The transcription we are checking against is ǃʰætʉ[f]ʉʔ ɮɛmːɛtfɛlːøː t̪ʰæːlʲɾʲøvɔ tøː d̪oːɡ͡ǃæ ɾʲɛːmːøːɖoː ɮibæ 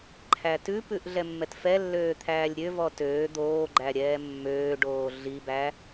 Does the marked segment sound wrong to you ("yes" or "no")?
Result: yes